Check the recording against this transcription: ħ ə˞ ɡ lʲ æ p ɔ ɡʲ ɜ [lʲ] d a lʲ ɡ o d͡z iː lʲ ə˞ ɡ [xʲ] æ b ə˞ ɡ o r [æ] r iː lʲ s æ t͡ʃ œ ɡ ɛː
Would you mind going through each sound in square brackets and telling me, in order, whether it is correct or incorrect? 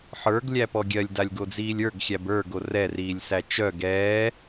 correct, correct, incorrect: ɛ

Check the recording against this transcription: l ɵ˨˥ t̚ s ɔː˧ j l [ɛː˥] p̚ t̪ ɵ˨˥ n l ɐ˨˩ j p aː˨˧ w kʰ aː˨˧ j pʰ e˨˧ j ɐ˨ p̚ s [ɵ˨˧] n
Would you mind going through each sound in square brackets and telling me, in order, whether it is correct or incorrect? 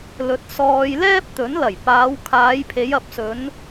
correct, correct

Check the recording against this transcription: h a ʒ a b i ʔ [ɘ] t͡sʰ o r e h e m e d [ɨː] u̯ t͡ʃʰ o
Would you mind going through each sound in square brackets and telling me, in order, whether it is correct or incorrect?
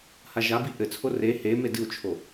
correct, incorrect: ɨ

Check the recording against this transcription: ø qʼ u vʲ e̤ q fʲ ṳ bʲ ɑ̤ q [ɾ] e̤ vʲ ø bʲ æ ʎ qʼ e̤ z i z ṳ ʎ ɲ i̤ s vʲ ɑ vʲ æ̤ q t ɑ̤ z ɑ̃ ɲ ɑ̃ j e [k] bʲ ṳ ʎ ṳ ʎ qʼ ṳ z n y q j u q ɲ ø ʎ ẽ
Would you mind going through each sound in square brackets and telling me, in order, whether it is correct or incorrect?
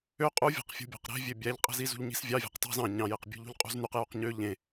correct, incorrect: q

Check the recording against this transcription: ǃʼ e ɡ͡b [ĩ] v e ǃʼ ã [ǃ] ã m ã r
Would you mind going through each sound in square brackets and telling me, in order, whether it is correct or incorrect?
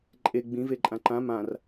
correct, correct

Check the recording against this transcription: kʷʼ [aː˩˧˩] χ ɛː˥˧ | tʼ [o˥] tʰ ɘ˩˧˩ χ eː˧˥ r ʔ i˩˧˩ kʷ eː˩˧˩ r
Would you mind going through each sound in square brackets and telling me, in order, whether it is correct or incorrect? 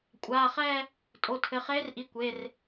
correct, incorrect: o˩˧˩

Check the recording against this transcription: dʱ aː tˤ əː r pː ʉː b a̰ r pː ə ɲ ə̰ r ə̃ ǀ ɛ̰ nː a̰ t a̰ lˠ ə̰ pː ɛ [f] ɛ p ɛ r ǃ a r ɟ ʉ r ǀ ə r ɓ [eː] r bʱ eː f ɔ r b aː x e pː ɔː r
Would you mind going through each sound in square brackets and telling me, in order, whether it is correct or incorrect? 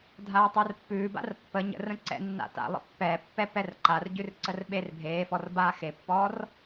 incorrect: pː, incorrect: e

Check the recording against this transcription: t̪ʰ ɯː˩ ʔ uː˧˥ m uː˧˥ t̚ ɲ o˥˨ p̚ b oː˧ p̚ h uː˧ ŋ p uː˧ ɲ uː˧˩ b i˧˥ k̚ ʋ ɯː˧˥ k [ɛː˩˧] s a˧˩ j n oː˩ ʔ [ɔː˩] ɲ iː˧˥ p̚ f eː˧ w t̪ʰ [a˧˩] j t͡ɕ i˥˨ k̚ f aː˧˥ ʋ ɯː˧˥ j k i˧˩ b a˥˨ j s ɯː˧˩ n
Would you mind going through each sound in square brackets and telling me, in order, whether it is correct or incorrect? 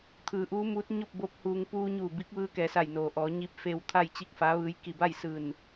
correct, incorrect: ɔː˩˧, incorrect: a˥˨

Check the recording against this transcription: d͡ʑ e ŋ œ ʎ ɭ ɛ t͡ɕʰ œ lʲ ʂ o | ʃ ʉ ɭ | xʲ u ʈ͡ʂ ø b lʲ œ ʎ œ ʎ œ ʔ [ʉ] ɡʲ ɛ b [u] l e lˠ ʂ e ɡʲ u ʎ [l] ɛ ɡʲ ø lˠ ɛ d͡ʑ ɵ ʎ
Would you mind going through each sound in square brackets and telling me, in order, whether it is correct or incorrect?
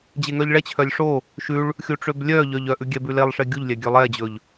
correct, incorrect: ʉ, incorrect: lʲ

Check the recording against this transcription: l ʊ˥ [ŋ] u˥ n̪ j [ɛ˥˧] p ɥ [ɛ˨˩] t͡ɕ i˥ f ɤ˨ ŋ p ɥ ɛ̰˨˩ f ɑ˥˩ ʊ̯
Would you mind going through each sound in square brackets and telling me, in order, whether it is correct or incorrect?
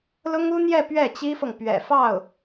correct, correct, incorrect: ɛ˥˩

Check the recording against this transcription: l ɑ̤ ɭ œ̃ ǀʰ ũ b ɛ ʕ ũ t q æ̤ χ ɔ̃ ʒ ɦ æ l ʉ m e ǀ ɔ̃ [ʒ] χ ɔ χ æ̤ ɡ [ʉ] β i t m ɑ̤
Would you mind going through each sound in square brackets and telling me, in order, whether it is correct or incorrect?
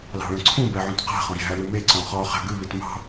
incorrect: none, correct

